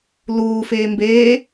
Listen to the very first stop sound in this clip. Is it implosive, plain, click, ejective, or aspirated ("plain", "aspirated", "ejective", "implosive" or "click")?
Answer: plain